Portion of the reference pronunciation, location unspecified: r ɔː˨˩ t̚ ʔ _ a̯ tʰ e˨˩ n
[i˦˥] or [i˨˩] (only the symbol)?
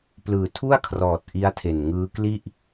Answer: i˦˥